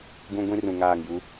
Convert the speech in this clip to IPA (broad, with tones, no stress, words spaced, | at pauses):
ɡũ˦ ɡʷĩ˦rũ˨ŋaː˦˨ŋju˦